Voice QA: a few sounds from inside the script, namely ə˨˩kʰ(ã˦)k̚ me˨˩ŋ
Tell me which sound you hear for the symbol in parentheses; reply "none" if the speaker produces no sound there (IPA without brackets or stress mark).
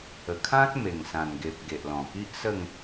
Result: ã˦